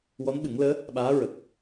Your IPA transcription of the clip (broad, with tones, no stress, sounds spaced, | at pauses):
w ɔ˧˥ n ɓ ɨ˨˩˦ ŋ l əː˧˥ | ɓ aː˧˥ ɹ ə˨˩ k̚